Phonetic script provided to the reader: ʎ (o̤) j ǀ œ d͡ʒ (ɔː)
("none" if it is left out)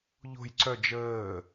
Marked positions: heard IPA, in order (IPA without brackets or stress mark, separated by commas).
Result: o̤, əː